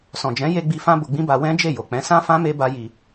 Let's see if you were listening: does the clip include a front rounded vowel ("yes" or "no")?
no